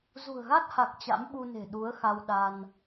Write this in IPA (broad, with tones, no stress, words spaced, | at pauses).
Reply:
zṳ˨˩ə̯ɣa˦˥t̚ha˨˩k̚ t͡ɕa̰˧˥mɓu˧ne̤˨˩ ɗu˨˦ə̯xa˧w ɗa˧n